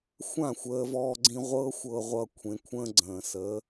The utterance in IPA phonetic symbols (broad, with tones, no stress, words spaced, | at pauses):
xʷã˥˩xʷəː˧vɔː˧ɡ͡ǀĩ˧ ʁʷɤ˥xʷɤ˧ʁʷʌ˧ kʷʰẽ˧kʷʰə̃ː˥ɡ͡ǀə̃ː˩sə˩˥